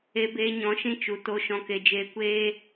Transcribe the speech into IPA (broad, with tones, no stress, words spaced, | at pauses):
e˧beː˧ ɲɔ̃˨˦ʃĩ˧ t͡ʃu˨to˧ ʃɔ̃˧ke˧d͡ʒeː˧ kʷeː˦